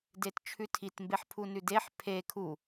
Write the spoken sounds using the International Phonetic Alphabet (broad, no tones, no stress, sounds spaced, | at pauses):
d e t t͡ʃʰ ʉ tʰ i t m b e ħ pʰ u n ʉ d e ħ pʰ e kʰ u